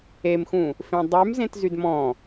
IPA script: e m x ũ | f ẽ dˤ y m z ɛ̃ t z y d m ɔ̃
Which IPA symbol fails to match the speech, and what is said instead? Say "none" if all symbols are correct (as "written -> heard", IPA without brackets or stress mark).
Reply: ɛ̃ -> ẽ